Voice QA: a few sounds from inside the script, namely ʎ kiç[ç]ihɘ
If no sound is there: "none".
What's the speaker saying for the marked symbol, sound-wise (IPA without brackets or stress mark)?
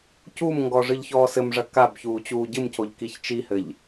t͡ʃ